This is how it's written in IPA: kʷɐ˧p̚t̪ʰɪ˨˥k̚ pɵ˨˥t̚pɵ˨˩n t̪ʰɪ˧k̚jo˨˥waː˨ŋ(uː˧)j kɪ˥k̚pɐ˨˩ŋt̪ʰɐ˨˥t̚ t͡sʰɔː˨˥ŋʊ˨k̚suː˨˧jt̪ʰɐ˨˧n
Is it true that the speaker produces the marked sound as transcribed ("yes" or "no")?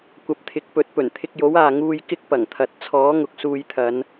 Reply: yes